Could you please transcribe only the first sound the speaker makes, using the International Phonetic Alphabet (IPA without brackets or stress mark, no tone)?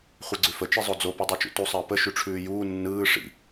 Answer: χʷ